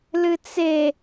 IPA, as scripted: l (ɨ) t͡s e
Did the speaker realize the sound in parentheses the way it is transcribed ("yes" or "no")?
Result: yes